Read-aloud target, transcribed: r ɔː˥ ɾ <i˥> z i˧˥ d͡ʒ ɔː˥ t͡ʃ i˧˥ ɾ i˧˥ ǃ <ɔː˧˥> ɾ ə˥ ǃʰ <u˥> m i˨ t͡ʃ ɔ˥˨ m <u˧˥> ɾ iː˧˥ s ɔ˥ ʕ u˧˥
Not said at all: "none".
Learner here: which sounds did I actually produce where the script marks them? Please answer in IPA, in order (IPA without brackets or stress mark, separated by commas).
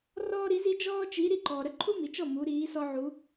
i˧˥, ɔː˨, u˥, u˧˥